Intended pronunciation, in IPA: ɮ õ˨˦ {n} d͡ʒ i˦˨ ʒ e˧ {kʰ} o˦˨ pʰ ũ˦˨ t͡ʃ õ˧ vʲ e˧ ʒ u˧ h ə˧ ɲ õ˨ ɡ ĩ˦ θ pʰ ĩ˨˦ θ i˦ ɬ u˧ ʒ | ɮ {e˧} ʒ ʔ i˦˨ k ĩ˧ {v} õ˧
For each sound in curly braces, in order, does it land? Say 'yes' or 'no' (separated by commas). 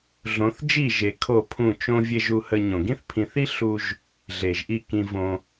no, yes, no, yes